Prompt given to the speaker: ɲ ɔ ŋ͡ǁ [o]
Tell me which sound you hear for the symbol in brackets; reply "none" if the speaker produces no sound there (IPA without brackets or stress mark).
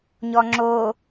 o